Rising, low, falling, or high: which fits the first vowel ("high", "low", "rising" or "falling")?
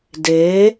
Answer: rising